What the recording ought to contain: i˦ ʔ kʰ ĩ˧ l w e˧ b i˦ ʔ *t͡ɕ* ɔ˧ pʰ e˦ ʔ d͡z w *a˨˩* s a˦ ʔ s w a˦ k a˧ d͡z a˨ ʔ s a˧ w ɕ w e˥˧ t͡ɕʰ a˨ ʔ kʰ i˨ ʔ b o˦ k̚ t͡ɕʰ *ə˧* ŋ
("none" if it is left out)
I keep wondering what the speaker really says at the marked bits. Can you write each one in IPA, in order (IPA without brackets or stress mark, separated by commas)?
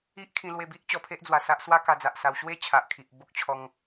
t͡ɕ, a˨˩, ɔ˧